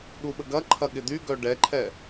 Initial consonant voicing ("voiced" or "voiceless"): voiced